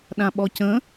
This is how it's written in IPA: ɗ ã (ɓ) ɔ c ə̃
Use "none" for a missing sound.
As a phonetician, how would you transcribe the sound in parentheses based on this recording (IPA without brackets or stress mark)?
ɓ